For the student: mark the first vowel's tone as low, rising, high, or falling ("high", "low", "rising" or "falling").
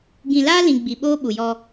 low